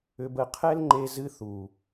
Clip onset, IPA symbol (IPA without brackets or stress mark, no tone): ʏ